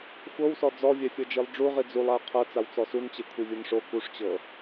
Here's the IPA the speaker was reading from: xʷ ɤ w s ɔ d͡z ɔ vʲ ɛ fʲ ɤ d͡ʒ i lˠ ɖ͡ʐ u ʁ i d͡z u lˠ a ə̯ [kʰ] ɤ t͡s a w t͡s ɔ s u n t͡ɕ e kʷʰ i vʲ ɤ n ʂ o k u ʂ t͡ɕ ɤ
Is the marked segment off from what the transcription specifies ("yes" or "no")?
yes